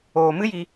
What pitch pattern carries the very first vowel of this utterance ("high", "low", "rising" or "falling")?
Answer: low